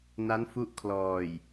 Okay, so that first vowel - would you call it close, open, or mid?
open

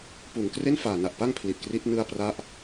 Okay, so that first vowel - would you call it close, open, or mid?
close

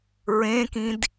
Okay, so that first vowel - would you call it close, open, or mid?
mid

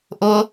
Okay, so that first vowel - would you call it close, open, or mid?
close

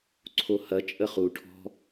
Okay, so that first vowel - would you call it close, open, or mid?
mid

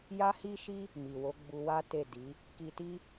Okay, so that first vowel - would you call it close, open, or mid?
open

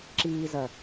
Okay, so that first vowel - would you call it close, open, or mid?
close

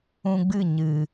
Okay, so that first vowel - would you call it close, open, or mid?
close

